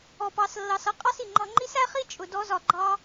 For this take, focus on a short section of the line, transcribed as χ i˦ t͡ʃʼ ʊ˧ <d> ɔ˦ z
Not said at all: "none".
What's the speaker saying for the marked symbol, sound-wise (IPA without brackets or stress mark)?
d